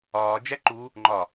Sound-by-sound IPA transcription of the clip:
ɒː d͡ʒ æ ǃ u | ŋ͡ǃ ɒ

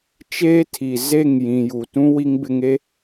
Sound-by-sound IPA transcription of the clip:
t͡ʃ eː˦ tʰ i˨ z e˦˨ ŋ j ĩ˨ j u˨ t ũ˦ w i˦ ŋ b ɪ˦ ŋ e˦

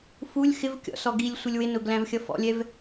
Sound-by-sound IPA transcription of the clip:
f u lʲ x ɪ v kʲ ɔ̰ s ɔ ɡ i lʲ sʷ ɪ lʲ w ɪ n ʊ ɡ l æ̃ v xʲ ʌ f ɔ̰ lʲ ɛ v

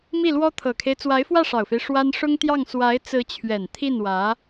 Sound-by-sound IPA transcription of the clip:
m i˥˩ l w ɔ˥ t̪ʰ ɤ˨˩ kʰ e˦ ɪ̯ t͡s w a˧˥ ɪ̯ f w ä˥˩ ʂ ɑ˨˩ ʊ̯ f e˦ ɪ̯ ʂ w a˥ n ʂ ʊ˥ ŋ t̪ j ɑ˥˩ ŋ s w a˧˥ ɪ̯ t͡s ɹ̩˧˥ t͡ɕʰ ɥ ɛ˨˩ n t̪ʰ i˥˩ n w ä˧˥

